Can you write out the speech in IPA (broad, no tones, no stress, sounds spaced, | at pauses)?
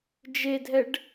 d͡ʒ e dʱ ɛ ɖ